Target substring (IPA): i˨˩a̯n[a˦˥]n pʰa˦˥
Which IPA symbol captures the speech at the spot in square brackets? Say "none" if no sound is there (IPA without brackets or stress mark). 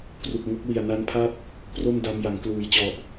a˦˥